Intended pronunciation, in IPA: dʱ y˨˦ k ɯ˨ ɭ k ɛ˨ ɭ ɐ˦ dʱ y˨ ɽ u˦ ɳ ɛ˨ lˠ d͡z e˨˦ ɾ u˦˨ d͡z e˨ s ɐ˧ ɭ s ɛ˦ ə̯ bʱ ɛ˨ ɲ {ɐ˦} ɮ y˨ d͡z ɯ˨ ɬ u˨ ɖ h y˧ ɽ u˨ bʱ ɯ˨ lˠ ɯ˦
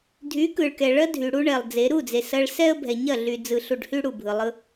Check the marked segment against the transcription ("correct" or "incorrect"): incorrect